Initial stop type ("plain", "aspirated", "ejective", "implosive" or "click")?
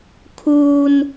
aspirated